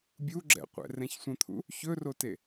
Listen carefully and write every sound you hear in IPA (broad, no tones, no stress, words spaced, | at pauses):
bʲuɡ͡ǁɛ̰qʷɛ̰ rɛ̃çsʷə̃t̪ʰṵ | çɵrote